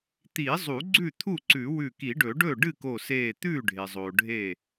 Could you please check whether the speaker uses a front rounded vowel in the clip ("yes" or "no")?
no